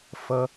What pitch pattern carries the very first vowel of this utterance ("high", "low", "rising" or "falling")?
high